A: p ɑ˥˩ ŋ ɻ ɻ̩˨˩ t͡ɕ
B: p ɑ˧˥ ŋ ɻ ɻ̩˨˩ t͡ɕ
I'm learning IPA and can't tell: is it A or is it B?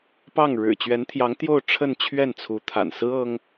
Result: A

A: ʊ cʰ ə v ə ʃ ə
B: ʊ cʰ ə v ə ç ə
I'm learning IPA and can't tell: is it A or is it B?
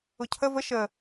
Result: A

